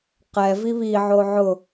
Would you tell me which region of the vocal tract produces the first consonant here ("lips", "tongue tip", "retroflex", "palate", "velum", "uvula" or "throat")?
uvula